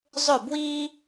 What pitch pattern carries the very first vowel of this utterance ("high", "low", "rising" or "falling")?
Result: falling